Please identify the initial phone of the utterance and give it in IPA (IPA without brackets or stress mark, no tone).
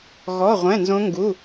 ɣ